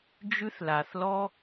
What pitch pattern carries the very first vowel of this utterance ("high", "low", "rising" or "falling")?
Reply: high